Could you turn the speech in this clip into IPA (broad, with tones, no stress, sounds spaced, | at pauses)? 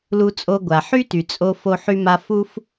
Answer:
l u˧ t͡sʼ o˧ ɡʷ a˩ ħ y˥ t y˩ t͡sʼ o˧ f o˧ ħ y˧ m a˧ f u˥ f